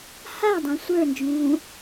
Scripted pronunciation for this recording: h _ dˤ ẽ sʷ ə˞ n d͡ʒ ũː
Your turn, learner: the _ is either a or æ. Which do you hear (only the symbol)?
a